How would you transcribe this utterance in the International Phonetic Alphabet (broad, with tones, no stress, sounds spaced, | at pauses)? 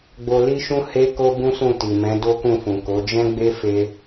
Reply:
ɡ͡b o˧ l i˦ ʃ ũ˦ h e˦ k o˦ b ũ˦ s ũ˦˨ t i˨ m ɛ̃˨˦ d o˦ k ũ˦˨ f ũ˨ k o˨˦ d͡ʒ ɛ̃˦ ɡ͡b e˦ f e˧